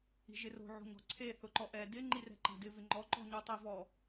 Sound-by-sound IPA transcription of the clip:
i̤ ʒ ɪ r o̤ ʕ o̤ ɲ ɔ̤ ǀʰ e θ ʊ ǃ ɔ ʔ ɛ d ɪ ŋ͡ǃ i r ɛ̤ ǃ a̤ d ɪ v ɪ ŋ͡ǃ ɔ ǃ ɔ̤ ɲ u tˤ i v ɔ

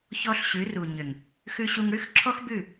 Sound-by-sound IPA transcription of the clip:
ç ɔ˦ ɬ ɕ ʉ˨˦ r u˨ ɲ ʏ˨ ŋ | x ʉ˧ ɕ u˧ ŋ ɽ ʉ˦ x ǁʰ ɔ˦ x b ʉ˦˨

